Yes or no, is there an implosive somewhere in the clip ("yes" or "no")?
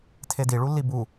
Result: no